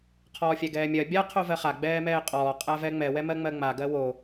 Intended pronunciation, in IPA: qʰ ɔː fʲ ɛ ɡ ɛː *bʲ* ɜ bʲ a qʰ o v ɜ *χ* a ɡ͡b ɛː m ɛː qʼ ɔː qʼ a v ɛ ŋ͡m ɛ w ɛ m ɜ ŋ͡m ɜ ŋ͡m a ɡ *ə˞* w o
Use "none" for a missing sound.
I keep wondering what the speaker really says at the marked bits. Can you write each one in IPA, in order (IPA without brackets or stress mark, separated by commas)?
mʲ, χ, ɜ